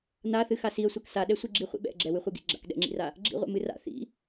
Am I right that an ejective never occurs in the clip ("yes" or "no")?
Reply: yes